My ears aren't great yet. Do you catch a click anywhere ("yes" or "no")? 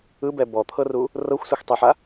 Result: no